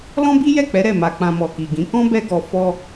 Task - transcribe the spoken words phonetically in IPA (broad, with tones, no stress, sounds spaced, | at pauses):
l ɔ̃˦ b i˦ j ɛ˦˨ k͡p ɛ˨˦ ɾ ɛ˦˨ m a˧ k͡p ã˧ m ɔ˨ k i˨ ɡ ĩ˨˦ k ɔ̃˦ b ɛ˦ ɡ ɔ˧ f ɔ˦